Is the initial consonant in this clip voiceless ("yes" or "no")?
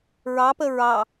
no